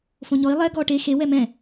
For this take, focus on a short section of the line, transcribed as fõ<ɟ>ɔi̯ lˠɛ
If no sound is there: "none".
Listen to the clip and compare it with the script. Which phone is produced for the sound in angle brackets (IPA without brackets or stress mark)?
ɲ